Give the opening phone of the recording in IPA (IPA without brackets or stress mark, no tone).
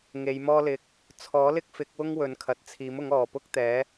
ŋ